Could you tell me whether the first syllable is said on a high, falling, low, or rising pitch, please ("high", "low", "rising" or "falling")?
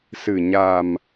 low